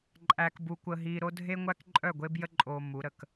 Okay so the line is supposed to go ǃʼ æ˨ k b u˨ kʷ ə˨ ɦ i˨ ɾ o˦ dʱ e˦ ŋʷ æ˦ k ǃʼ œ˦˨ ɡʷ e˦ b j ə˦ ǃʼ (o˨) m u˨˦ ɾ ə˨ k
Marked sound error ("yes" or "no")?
no